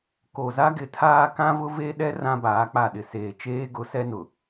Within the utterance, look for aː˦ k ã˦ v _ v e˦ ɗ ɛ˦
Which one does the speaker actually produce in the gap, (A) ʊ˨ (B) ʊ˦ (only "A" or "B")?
B